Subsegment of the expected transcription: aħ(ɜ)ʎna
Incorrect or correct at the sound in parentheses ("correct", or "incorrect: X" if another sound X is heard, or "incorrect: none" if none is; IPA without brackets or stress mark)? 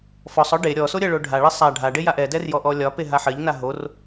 correct